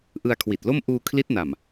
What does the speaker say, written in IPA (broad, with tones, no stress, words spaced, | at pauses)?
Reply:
ʔɯ˧a̯kʰwi˨˩t̚lo˥˩m ʔuː˧kʰli˦˥t̚na˨˩m